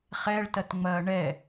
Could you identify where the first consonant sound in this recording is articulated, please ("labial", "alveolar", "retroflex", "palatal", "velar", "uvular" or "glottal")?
uvular